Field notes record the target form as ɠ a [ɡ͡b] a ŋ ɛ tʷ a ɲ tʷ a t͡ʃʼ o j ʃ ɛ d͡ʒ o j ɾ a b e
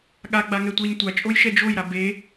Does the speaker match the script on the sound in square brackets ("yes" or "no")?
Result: yes